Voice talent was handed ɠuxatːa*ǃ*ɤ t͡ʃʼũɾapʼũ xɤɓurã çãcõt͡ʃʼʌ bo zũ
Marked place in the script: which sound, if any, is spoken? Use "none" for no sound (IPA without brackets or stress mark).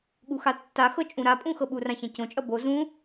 x